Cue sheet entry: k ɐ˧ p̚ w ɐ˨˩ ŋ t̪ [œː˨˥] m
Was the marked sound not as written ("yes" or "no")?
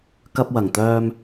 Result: yes